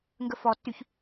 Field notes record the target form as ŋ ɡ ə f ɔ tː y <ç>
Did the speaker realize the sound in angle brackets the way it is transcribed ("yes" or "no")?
yes